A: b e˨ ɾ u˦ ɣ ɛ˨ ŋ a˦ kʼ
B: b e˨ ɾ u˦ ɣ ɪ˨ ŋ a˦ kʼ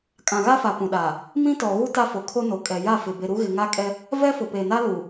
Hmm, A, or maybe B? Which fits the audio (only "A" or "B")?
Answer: B